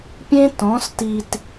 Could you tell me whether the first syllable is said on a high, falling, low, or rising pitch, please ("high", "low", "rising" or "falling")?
high